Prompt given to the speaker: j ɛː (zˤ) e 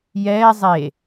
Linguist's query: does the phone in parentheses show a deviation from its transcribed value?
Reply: no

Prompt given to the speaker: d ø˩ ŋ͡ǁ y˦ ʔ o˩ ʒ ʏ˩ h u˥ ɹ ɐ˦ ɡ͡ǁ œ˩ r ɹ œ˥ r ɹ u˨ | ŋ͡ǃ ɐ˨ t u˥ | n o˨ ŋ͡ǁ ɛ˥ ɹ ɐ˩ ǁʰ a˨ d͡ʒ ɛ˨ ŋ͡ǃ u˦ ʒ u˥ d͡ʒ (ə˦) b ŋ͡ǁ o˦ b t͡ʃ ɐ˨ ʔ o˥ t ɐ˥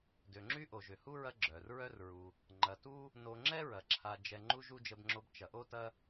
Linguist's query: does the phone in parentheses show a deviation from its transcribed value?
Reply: no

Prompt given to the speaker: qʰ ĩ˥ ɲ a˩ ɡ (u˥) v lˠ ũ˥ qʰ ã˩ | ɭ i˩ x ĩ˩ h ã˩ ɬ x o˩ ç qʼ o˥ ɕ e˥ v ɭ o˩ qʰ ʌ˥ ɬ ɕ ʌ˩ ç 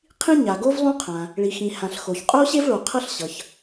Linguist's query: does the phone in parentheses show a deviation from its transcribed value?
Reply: yes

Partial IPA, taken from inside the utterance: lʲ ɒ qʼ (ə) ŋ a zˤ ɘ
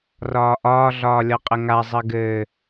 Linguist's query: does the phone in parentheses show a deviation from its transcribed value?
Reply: no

